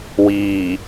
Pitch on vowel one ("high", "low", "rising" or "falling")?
low